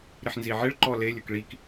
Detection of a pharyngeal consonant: present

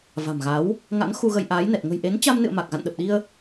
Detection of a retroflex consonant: absent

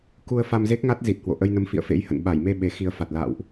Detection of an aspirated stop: absent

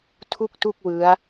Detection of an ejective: absent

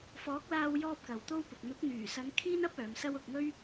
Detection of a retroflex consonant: absent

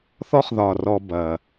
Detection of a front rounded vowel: absent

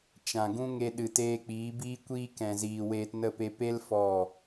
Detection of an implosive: present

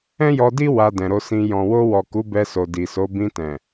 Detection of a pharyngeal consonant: absent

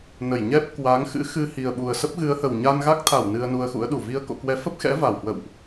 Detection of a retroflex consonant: absent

